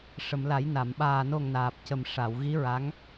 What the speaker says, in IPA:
ʂ ə˨˩˨ m l a˨˩˦ j n a˨˩˨ m ɓ aː˨˩ n o˨˩ ŋ n aː˨˩ p̚ c ə˨˩ m ʂ a˨˩˨ w ɣ i˧˥ ɹ a˧˥ ŋ

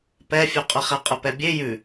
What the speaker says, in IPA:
p ɛ fʲ ʉ qʼ ə χ ɛ qʼ ə p ɛ bʲ e j ʉ

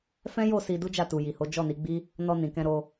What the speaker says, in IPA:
f ɛ̃˦ j o˦˨ s i˧ d u˦ d͡ʒ a˦˨ t u˨ j i˨ h o˨˦ d͡ʒ ɔ˦˨ n i˨˦ ɡ͡b i˦ | n ɔ˧ n ĩ˨ k ɛ̃˧ ɾ o˧

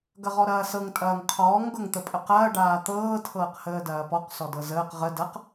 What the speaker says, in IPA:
ɡ ɐ ʁ ɔ ɾ ɐː s ɤ ŋ tʼ ɐː ŋ qʰ ɔː ŋ ɡ ɤ ŋ t̪ ə pʼ ə q ɐː ɖ aː t̪ ɤː tʰ ɤː q h əː d ɐː p ɔ q s ɔ d ɤ z əː q ʁ ə d ɐ q

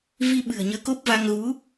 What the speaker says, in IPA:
v i˧ ɓ ɨ̤˨˩ ə̯ ɲ əː˨˦ k o˦˥ p̚ v a˧ ŋ ɣ u˨˦

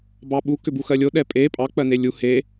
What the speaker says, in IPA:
b ɑ ɓ u k ʏ b u x ɜ lʲ o ɗ ɛ pʼ e pʼ ɑ k͡p ɜ n e lʲ u h e

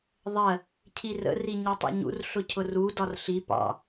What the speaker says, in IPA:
ðˤ ɜ | cʰ i r ə̰ r i ɲ ɔ tˤ ḭ ɲ ṵ r ɬ ʊ cʰ ʊ r u d ɒ r ɬ i p ɑ̰

